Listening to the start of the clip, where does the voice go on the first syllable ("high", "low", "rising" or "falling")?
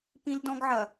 high